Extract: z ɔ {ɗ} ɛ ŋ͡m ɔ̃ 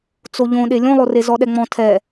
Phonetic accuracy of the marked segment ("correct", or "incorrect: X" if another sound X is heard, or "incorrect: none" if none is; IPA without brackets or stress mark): correct